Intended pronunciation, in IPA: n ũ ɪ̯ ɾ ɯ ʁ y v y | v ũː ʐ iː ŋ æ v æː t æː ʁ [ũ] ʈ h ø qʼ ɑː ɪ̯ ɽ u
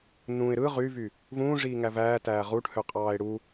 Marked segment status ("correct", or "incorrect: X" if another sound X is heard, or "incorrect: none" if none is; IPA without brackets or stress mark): incorrect: u